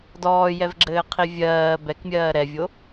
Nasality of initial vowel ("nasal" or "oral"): oral